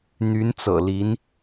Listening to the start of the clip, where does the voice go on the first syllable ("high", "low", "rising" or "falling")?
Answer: rising